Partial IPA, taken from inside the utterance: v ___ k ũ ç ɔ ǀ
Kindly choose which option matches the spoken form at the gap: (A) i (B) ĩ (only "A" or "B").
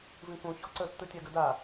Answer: B